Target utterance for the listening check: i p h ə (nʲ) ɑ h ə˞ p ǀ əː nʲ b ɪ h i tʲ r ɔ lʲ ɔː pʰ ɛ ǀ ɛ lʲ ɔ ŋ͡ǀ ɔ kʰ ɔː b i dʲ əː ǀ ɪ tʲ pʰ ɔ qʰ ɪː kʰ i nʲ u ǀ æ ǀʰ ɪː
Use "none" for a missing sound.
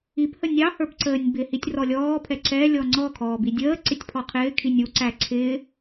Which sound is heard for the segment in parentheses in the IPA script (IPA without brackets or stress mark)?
nʲ